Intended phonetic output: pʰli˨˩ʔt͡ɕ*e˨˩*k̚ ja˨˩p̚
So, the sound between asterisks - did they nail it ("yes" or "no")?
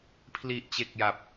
yes